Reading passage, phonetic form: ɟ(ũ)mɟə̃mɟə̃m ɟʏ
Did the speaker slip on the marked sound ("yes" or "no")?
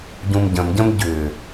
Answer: no